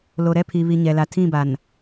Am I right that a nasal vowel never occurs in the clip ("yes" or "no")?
no